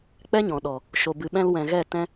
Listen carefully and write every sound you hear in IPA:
k͡p ɛ˦ ɲ ɔ̃˨ ɗ ɔ˨ | ʃ o˨ b ɨ˨ ɓ ɛ̃˧ l w ɛ̃˨ ɣ ɛ˦˨ t ɛ̃˧

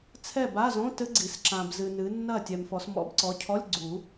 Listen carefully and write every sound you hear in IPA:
t͡sʰ ɛ˥˨ b a˧˥˧ z õ˧˥˧ t ɘ˦˥ ɡ͡ǀ i˨ s ǁ ã˨ b z ɨ˨ n ɨ˨˦ nː ɐ˥˨ tʲ ɛ˨ m f ɔ˨˦ s m ɔ̰˨˦ b ǀ ɔ˨˦ cʰ ɔ˧˥˧ lʲ ɡ͡ǀ u˨˩˦

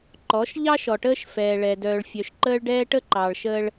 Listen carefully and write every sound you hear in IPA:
ǃ ɔ˨˦ ʃ ʎ ɑ˦ ʃ ɔ˨ ʈ əː˦ ʃ f ɛː˨ ɭ ɛ˨ d œː˨ ɭ fʲ œ˨ ʃ ǃ əː˦ ɭ ɖ ɛː˦ ʈ ə˦ ǃ ɑ˨ ɭ ʃ əː˦ ɭ

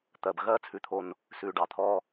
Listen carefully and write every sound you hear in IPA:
t̪ ɜ˩ b ɣ ɜː˧ t͡sʰ ʉ˩ t̪ʰ o˩ n | s ʉ˩ ɖ ɑ˩ t̪ʰ ɔː˧

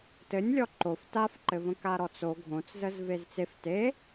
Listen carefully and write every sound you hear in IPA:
t ɘ nʲ lʲ ɔ ǃ o f t a f ǃ ɘ v ə̃ k a ɾ ɔ t͡s o ɡʱ õ t͡s z ə z v e z t͡s e f t e

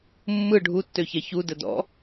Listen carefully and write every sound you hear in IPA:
mː ɯ ɖʱ u tː ø ç ɛ ç u d ə d ɔ̰

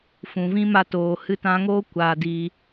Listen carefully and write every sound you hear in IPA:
f ũ˨ v ĩ˦ m a˧ t oː˨ h ɨ˧ t ã˧ ŋ oː˦ kʷ aː˧ d i˧

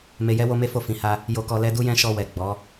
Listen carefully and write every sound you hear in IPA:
m e˧ j ɛ˦ w o˦ m e˦ f o˦˨ f ĩ˨ h a˧ | j o˧ k ɔ˧ l ɛ˦ d u˦ j ɛ̃˦ ʃ ɔ˧ w ɛ˨ ɡ͡b ɔ˨˦

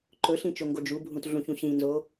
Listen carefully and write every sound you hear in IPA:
ǃ ɵ ɬ ĩ t͡ʃ o ŋ ɡ o d͡ʒ u bʱ ũ t ɮ ũ ç ũ ɕ ĩ n z o

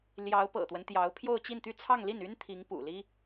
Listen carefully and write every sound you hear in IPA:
l j ɑ˧˥ ʊ̯ p ɤ̰˨˩ t̪ w ə˦ n t̪ j ɑ˧˥ ʊ̯ pʰ j o˥˧ ʊ̯ t͡ɕ i˥˧ n t̪ y˥˧ t͡sʰ ɑ˥˧ ŋ l i˥˩ n y˥ n t̪ʰ i˧˥ ŋ p ṵ˨˩ l i˥

